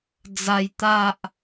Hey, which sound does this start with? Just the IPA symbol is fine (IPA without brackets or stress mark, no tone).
d͡z